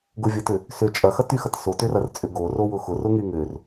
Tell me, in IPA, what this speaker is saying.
ɡ ʊ vʲ ɐ t ʏ | s ʏ t͡ʃʼ ɐ x ɐ t y x ɐ t s o t ʏ r ɐ r t͡sʼ ʏ ɡ o r o w ʊ x ʊ r ʊ ŋ y ŋ ʏ r

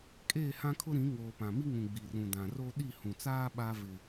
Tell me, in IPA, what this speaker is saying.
kʼ eː˦˨ h ã˦ kʰ ʊ˦ ɾ ĩ˨˦ ŋ oː˨ p ã˨ m i˦ ŋ ũ˨ ɡ͡b i˨ r ũ˨ d ã˨ r o˦ ɗ i˦˨ h ũ˨ t͡s aː˦ ɓ a˦ v ɪ˨

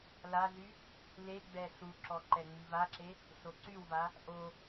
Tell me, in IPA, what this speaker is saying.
l a ɮ y | l e ɡ͡b ɛ ɬ u ǁ ɔ ǃ ɛ ŋ͡m i v a ǁ e | ɬ o ǀ y w v a | ʔ o

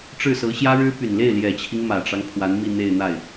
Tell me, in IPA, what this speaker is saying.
ʈ͡ʂ ɻ̩˥˩ s ɤ˧˥ ɕ j ä˥ ɻ ɻ̩˥ p y˨˩ n l e˥˩ ɪ̯ l j ɛ˨˩ t͡ɕʰ i˦ ŋ m ä˨˩ ʈ͡ʂ ɑ˦ ŋ pʰ w a˧˥ n m i˥˧ n̪ e˥˧ ɪ̯ n̪ a˥˩ ɪ̯

